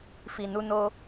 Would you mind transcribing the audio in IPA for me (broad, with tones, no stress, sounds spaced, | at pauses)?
f i˨ n u˧ n o˧